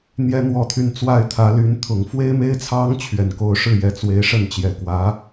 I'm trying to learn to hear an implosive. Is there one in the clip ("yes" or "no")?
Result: no